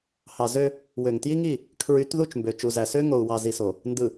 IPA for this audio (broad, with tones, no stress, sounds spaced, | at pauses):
h ɑ˨ z ø˦ | w ø˨ ŋ t j i˦ ŋ i˦˨ | kʰ ɹ y˨˦ t ð u˦˨ t͡ʃ m b ø˨ t͡ʃ u˨ z æ˨ s ø˦ ŋ o˨ u̯ w ɑ˨ z i˨ s o˨ | n d ɯ˨